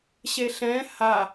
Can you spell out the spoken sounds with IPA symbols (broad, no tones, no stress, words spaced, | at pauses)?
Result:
ɕeɬɛ̃ ha